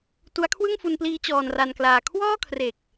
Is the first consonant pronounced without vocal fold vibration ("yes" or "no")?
yes